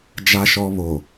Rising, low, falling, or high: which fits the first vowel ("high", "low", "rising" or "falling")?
low